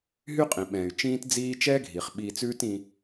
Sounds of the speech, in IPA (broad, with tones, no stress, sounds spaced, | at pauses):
ɦ y˥ qʼ ĩ˩ ɓ ɛ̃ː˩ y̯ t͡ʃ ĩː˥ t d͡z iː˥ t͡ʃ ɛː˥ ɡʱ i˩ χ ɓ iː˧ t͡s ʉː˥ t ĩ˧